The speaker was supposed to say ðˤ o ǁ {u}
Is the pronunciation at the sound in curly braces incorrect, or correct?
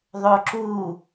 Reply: correct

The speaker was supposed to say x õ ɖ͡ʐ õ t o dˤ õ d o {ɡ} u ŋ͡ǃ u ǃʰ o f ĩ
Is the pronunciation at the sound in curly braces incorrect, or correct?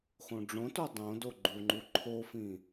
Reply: incorrect: ɡ͡ǃ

